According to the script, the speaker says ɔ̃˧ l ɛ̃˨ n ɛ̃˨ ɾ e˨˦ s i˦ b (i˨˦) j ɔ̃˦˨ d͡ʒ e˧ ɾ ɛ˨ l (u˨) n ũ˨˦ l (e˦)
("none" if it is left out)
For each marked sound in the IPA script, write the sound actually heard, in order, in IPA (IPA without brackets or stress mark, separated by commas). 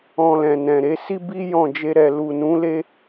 i˦, u˨, e˦